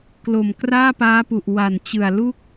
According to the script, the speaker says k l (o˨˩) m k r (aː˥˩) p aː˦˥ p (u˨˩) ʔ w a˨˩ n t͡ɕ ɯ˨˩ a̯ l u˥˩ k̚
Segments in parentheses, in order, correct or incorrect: correct, correct, correct

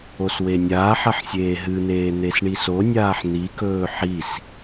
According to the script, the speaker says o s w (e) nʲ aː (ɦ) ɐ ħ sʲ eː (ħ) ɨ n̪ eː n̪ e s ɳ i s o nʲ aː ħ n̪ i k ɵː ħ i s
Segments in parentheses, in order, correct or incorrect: correct, incorrect: ħ, incorrect: ɦ

